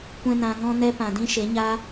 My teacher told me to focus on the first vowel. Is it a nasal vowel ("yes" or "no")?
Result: yes